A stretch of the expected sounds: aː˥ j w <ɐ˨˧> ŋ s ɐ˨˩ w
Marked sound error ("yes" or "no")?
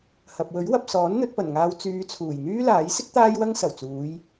yes